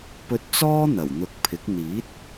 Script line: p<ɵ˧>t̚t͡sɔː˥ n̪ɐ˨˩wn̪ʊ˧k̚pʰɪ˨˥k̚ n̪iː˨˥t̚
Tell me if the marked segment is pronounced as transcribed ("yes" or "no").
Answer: yes